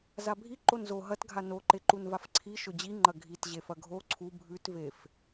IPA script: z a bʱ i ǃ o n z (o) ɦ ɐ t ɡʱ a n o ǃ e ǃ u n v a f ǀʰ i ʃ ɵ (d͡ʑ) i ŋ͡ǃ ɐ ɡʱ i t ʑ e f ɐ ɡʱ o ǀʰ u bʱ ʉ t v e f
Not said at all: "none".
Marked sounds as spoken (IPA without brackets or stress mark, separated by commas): o, d͡ʑ